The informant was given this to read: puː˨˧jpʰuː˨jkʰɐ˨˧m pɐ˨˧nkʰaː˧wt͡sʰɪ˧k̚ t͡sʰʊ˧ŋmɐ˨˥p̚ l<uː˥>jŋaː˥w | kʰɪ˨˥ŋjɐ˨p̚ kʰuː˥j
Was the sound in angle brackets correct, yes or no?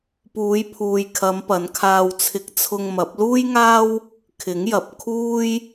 yes